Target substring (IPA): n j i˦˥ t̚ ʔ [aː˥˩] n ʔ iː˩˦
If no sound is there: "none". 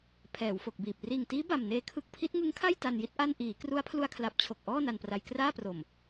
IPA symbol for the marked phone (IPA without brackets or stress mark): a˥˩